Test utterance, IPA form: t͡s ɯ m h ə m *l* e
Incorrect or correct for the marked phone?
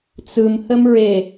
incorrect: ɹ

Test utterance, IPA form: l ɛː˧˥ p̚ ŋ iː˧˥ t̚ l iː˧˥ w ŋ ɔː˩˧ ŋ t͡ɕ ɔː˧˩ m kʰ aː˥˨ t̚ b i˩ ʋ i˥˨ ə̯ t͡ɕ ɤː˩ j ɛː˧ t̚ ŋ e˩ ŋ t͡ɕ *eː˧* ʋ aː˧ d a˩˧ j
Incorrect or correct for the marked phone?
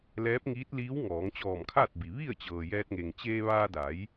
correct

